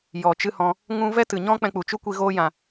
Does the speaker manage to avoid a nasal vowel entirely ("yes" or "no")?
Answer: no